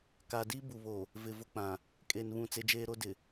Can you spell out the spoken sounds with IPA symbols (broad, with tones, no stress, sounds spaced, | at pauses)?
k a˨ d i˦ b u˨ β o˨ | v ɪ˨ v ʊ˦ k͡p ã˨ | kʼ e˨ n β ũ˦˨ t͡s e˦ d͡ʒ eː˦ ɾ o˦ d ɪ˨